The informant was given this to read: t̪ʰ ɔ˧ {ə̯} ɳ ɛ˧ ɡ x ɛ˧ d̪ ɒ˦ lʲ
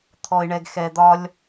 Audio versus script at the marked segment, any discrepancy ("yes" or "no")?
yes